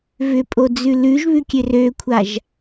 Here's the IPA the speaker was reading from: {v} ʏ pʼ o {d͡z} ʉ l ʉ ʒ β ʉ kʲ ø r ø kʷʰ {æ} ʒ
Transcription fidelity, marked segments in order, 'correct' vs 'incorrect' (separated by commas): correct, correct, incorrect